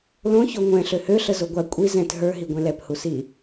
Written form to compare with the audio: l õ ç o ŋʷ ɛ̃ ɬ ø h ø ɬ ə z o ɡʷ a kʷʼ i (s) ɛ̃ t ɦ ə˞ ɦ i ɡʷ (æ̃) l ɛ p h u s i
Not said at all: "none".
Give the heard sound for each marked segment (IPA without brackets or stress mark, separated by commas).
z, ɛ̃